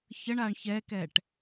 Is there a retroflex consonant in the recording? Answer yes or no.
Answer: yes